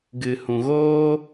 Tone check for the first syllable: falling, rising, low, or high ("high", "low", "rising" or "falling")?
low